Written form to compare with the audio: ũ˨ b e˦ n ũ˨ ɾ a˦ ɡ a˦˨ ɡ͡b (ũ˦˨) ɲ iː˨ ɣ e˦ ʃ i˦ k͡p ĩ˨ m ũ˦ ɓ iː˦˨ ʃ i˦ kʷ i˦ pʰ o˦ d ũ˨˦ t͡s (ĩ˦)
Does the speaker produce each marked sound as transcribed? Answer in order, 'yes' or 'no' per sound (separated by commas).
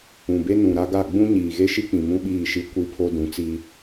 no, no